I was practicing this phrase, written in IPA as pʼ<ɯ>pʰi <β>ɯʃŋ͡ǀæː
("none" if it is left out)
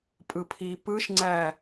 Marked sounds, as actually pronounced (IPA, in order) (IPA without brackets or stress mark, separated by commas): ɯ, p